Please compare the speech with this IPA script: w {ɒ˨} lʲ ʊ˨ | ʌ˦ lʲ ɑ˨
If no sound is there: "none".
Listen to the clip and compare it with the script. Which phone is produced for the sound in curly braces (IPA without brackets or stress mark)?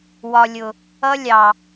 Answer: ɒ˨